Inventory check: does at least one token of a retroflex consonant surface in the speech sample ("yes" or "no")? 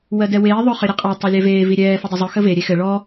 yes